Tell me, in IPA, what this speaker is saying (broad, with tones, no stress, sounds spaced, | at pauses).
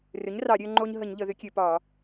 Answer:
r ʏ˩˥ ɲ r ɑ˧˩˧ ɾʲ ø˧ ŋ͡ǃ o˧ ɲ ɦ ə˧˩˧ ɲ ʎ ə˧˩˧ ð ʏ˩˥ kʲ ø˧˩˧ p ɒː˧˩˧